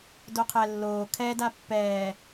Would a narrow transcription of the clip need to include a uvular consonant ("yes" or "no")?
yes